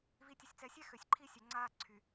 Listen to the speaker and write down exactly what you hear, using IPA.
v i˨ tʲ ə˨ sʲ t͡s ɛ˨ sʲ ɛ˦ x ø˨ sʲ ǃʰ i˦ sʲ œ˨ ŋ͡ǀ aː˦ ǀʰ y˨

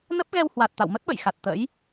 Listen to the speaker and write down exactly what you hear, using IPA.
n ə˦˥ p̚ ɣ ɛ˧ w h w a˨˩ t̚ t̪ a̰˧˨ w m ə˦˥ t̚ ɓ ə̰˧˨ j x a˨˩ t̚ t̪ ə̰˧˥ j

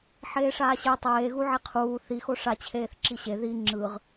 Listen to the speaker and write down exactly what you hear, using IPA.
ħ eː ʂ aː ɕ e tˤ eː ɣ u ʕ e qʰ uː θ i x o ʂ a t͡ɕʰ eː θ ǁ i ɕ e ð i ŋ͡ǁ ɯ ʁ

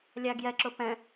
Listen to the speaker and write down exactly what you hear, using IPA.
lʲ æ ɡ j ɛ ǁ ʊ p ɛ̃

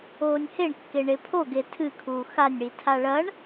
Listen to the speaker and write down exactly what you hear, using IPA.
oː nʲ h e ɳ kː e ɳ e pʰ o ɡ e tʰ ɨ kʰ uː x a nʲ ɽ i tʰ a ɭ ɐ ɳ

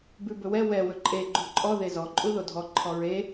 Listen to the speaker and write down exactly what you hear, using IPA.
b ʉ b ɵ w ɛ w ɛ w ɵ ǃʼ e ɡ͡ǃ u ǃʼ ɔ ð e z ɔ ǃʼ u ð o dʱ ɔ ǃʰ ɔ ɹ e

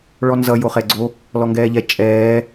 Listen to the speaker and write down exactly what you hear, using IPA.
ɭ ɔ n z ʌ j o χ ɛ ɡ͡ǀ o | l ɔ ŋ ɡ ɛː ʎ ɛ t͡ʃʼ ɛː

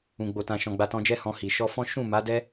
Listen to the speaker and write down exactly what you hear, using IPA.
ũ˨ ɡ͡b o˨ t ã˨ ʃ ɔ̃˨ ɡ͡b a˧ t ɔ̃˧ d͡ʒ ɛ˦ h ɔ̃˧ h i˨ ʃ ɔ˧ f ɔ̃˦ ʃ ũ˦˨ m a˨˦ d ɛ˦

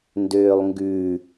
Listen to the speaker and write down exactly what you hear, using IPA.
n d øː lˠ ŋ ɡ ʉ

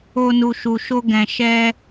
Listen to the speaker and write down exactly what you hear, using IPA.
o˧ n u˨ ʃ u˨ ʃ o˧ ɡ ɛ̃˨ ʃ ɛ˧

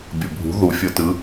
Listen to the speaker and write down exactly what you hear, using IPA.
bʲ ɤ bʱ ṳ ð u fʲ ɤ t ɯ

